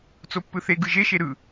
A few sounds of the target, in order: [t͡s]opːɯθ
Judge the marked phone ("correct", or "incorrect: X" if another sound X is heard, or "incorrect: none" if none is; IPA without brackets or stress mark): correct